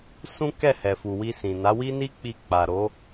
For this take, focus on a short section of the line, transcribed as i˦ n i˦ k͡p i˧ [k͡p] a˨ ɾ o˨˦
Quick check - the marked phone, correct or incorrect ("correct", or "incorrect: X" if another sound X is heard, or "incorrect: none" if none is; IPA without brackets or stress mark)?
correct